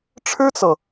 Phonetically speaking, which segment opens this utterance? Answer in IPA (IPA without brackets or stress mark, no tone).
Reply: ʈ͡ʂʰ